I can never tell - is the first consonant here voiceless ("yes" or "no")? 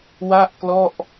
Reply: no